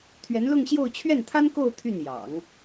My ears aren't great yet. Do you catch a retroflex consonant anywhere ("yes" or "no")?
no